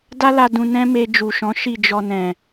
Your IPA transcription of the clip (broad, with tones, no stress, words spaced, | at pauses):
da˦la˧ dũ˧nɛ̃˦me˧ d͡ʒu˨ʃɔ̃˨˦ʃi˦˨ d͡ʒɔ˧nɛ̃˨